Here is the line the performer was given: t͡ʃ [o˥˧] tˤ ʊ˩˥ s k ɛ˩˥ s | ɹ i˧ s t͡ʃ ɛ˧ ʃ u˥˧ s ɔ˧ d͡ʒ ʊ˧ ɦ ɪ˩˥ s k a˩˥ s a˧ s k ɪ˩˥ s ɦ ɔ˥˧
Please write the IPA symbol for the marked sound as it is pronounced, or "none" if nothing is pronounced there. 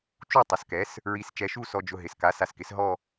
u˥˧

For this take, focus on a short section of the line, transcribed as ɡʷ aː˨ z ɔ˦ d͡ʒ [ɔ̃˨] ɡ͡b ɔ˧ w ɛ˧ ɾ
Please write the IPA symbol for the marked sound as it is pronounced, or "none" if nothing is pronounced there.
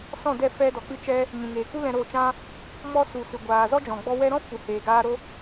ɔ̃˨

